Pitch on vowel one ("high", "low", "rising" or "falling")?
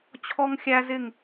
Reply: high